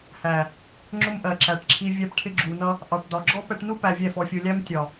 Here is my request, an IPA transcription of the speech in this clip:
h æ˨ | ŋ͡ǁ ʊ˦ m ʔ ɜ˨ ǁ æ˨ ʈ ǁʰ i˧ vʲ æ˧ p ʈʰ ɪ˧ ɡ͡ǁ u˨ n ʌ˧ | ʔ ɑ˨ ʈ d ɒ˨ ɡ͡ǁ ɔ˦ p ɛ˧ ʈ n u˦ p æ˧ vʲ ɛ˦˨ f ɔ˨ fʲ u˨ lʲ æ˧ m tʲ ɒ˨

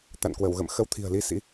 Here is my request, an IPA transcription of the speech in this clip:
t̪ a̰˧˨ n k w ə˧˩ w ɣ ə̰˧˨ m x ə˧ w t̪ʰ i̤˨˩ ə̯ l i˧ s ḭ˧˥

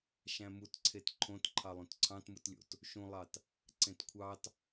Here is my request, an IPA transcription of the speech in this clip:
ʃ æ̃ m u t ǀʰ e t ǃʰ õ t ǃʰ ɑ lˠ ũ t ǀʰ ɑ̃ t m ɯ t lʲ o̰ t | ʃ ũ lˠ ɑ t | ǀ ẽ t kʷʰ ɑ t

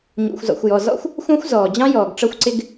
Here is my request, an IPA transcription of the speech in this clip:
ɲ ṵ˩ xʷ z ɔ̰˩ xʷ j ɔ˩ z ɔ̰˥ xʷ | xʷ ɑ̃˥ xʷ z ɔː˩ d͡ʑ ɑ̃˥ j ɔː˩ ɡ ʈ͡ʂ ʌ˥ xʷ ǀ ɪ˥ ɡ

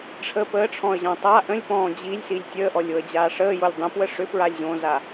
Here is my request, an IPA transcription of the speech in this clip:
ʈ͡ʂʰ ə p əː ʈ͡ʂʰ ɔ̃ ə̯ ʑ ɔ̃ tˤ a ʔ ə̃ lʲ p ɔ̃ː d͡ʑ i lʲ s i lʲ tʲ əː ʔ ɔ lʲ o ə̯ d͡ʑ aː ʂ əː j o lʲ dˤ ə̃ p w ə ʂ ʏ p ɹ a lʲ ʑ õː z a

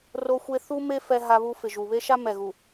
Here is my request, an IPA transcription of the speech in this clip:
r o˦ xʷ e˦ θ u˦ m e˦ f ɛ˦ ɦ a˦ β u˦ f ɪ˨ ʒ u˨ β e˦ ʃ a˦ m ɛ˨ ɣ u˨

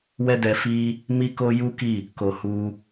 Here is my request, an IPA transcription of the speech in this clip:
w ɛ˦ d ɛ˧ f i˦ | m i˦ k o˦ j u˦ k i˦˨ | k o˨ h u˧

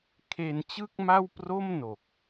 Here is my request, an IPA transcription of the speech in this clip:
kʰ e˧ n t͡ɕ ɯ˥˩ k̚ m a˥˩ w p r o˥˩ m n o˨˩ k̚

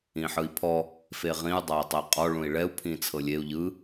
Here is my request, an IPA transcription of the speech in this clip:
ĩ ħ ɯ i̯ pʰ ɔ | f e ʁ ĩ u̯ dˤ a i̯ tˤ e qʼ ɔ ɭ ũ i̯ ɭ ɛ u̯ pʰ ĩ t͡sʰ ɤ lʲ e u̯ ʎ ɯ

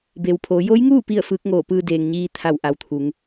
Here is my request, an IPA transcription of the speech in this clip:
b e˩ w pʰ oː˩˧ j o˧˥ j ŋ uː˥˨ p i˥˨ ə̯ f ɯː˧˥ k̚ ŋ oː˧˩ p ɯː˧ d eː˩ ŋ ɲ iː˧ t̪ʰ a˧˩ w ʔ a˩ w t̪ʰ u˩˧ ŋ

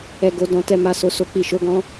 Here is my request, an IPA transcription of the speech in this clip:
ɛ˧ ɡ o˧ d ɔ̃˧ t ɛ˧ m a˧ s o˧ s o˦ k͡p i˧ ʃ o˦ ɡ ɔ̃˦

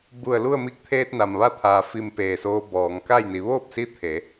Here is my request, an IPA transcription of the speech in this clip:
b u˧˩ ə̯ l u˥˨ ə̯ m i˧˥ k̚ t̪ʰ eː˧ t̚ n a˩ m ʋ a˥˨ t̪ʰ aː˩ f i˧˩ m p eː˧˩ s oː˧ b ɔː˩˧ ŋ k a˥˨ j n i˩˧ ʋ oː˥˨ p̚ s i˧˥ t̪ʰ e˩˧

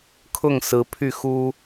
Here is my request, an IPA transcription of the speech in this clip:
kʰ ʊ˥˩ ŋ s ɹ̩˧˥ pʰ y˥˩ x u˥

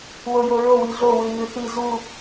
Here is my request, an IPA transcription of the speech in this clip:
w o j o ɹ o w i ɮ o w ʉ ɲ ʉ θ i z u

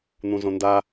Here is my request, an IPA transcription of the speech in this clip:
n̪ ũ z õ n d a

